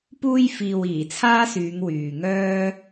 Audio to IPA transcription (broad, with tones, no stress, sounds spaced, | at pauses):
p uː˥ j f iː˨ w iː˨˩ t͡sʰ aː˥ s yː˨˧ ŋ w yː˨ ŋ œː˥